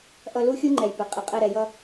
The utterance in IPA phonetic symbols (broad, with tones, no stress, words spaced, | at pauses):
ʔʌ˧lu˦xʲu˦ ŋ͡ǃɛ˧jpɪ˨˦ qʼɪ˨qʼɛ˧ ɾɛ˨jʌ˧